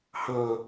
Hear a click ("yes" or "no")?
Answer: no